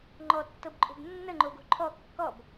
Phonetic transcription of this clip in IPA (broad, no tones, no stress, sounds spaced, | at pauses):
ŋ͡ǃ ɔ tː ɤ b ǃʼ o̤ b nː ə ŋ͡ǃ o ɡ o̤ ǃʰ ɔ kː ɔ b